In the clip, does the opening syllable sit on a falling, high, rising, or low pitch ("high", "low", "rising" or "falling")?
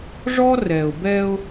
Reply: high